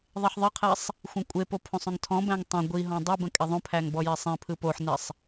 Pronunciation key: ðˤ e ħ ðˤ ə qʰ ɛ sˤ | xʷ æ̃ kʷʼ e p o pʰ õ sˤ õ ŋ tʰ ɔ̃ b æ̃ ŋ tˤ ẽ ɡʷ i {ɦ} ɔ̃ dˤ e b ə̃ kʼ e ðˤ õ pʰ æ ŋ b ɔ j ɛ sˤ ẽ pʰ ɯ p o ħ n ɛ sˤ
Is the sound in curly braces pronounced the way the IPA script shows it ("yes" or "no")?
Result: yes